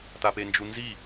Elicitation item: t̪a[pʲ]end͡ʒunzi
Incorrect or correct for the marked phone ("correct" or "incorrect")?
incorrect